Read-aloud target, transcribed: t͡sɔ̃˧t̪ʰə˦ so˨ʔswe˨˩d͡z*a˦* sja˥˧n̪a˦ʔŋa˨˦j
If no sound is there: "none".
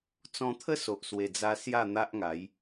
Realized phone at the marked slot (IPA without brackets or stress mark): a˧